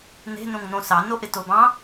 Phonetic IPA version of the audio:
n̪ e̤ n õ ŋ n̪ õ s ɑ n o ʔ ɪ t o b ɑ̃

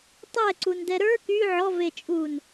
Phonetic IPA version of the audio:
tˤ ɛ ǀ u n d ɛ ɾ ə˞ k y ʕ ɔ v e t͡ʃʼ uː n

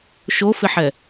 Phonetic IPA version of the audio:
ʃ o f ɪ ħ ɛ

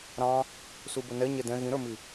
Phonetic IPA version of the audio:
ɾ ɑ̃ | s u b ə n ɛ ɲ ɛ d ɛ̃ ɣ ĩ ɾ ə˞ m i

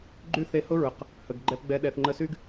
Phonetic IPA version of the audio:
ɡ͡ǃ y˦ θ e˧ h ʊ˦ ɹ ʊ˨ q | h ə˨ ɡ ɡ͡ǃ ɛ˦ p ɡ͡b ɛ˧ ɗ ɛ˨ θ ŋ͡ǃ ə˧ s y˦ ɡ

